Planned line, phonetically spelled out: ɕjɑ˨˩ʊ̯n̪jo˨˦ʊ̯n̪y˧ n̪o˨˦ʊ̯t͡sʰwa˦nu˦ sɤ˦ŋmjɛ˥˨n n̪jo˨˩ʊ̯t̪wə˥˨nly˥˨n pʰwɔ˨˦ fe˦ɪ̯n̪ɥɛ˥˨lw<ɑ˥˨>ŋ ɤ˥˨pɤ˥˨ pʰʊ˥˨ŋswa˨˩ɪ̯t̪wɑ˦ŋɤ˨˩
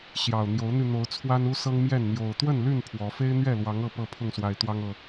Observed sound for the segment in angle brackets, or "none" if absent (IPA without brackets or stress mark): ɑ˨˦